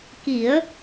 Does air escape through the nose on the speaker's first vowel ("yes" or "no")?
no